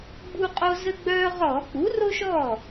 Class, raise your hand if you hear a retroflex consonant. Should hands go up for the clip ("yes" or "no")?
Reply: no